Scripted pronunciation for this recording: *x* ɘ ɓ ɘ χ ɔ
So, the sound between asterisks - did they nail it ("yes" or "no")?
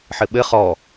no